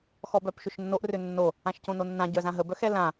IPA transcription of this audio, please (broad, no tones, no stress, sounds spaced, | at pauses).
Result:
x ɔ b œ p ʃ ʏ ʃ nː o ʔ r ʏ nː o | ã ʃ c õ n o nː ã ɟ œ z ã ɦ ə b œ x ɛ l ã